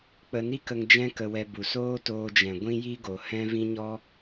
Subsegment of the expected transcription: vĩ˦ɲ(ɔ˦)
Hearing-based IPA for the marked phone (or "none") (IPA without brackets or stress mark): ɔ˦